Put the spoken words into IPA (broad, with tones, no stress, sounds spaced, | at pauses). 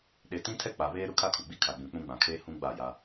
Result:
ɗ e˨ t ĩ˦ tʰ ɛ˦ k͡p a˨ β eː˦ ɾ ʊ˦ kʰ a˦ kʰ u˨ ɡ͡b i˦ kʰ a˨ ɡ͡b ũ˨ k͡p ũ˦ ɡ͡b ã˨ kʰ eː˦ h ũ˦ ɡ͡b a˦˨ j a˦